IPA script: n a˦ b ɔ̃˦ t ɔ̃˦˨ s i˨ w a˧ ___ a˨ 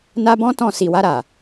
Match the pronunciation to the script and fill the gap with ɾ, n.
ɾ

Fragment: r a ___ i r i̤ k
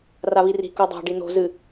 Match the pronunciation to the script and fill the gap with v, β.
β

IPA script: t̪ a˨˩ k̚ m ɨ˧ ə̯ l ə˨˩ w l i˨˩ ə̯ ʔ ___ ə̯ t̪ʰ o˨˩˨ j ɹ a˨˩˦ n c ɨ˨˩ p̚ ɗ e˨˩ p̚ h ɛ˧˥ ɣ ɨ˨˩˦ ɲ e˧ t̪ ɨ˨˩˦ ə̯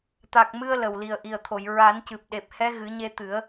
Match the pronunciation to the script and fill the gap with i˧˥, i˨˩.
i˨˩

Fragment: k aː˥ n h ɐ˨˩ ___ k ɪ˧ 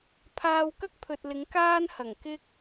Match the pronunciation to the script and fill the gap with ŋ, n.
ŋ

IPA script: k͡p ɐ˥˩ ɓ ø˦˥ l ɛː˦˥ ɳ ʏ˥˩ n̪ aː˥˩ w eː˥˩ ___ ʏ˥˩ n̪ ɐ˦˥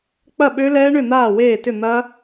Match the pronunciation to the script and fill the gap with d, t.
t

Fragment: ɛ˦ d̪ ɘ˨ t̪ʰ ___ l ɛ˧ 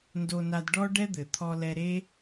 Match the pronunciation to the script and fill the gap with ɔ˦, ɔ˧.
ɔ˧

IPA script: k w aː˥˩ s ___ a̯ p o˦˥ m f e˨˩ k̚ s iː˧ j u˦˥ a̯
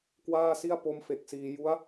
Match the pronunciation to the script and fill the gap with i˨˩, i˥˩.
i˥˩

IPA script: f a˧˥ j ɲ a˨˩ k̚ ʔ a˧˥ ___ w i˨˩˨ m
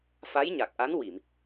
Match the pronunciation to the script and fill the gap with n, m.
n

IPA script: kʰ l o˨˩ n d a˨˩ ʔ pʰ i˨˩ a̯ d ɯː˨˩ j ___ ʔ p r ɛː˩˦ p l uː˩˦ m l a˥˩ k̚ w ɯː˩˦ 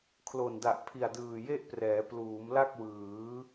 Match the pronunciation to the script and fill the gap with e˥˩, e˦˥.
e˥˩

